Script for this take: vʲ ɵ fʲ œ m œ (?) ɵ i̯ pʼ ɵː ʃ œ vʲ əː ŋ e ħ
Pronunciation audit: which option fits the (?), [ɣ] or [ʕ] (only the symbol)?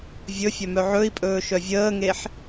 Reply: ʕ